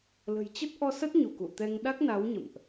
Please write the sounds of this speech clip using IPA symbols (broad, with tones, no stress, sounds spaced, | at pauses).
l ə̤˨˩ j t͡ɕ ə˦˥ t̚ ʔ ɔ˧ s ə˦˥ t̚ ɲ u˧˩ k ṵ˧˨ t̪ ɛ˧ ŋ ɗ a˦˥ k̚ n a˨˦ w ɲ ə̰˧˨ m ʔ